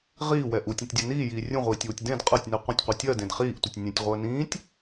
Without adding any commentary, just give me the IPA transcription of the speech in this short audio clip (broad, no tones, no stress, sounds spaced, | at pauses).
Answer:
ʁ iː w ɛ ʔ u tʲ ũ tʲ dʲ ɛ n iː j iː rʲ ũ ʁʷ iː tʲ w u tʲ d ẽ d qʼ ɜ tʲ n i qʷ ə̃ tʲ qʷ i tʲ ɜ d ẽ d χ iː ʔ tʷ ə tʲ nʲ ẽ tʲ ʁʷ əː n ĩː tʲ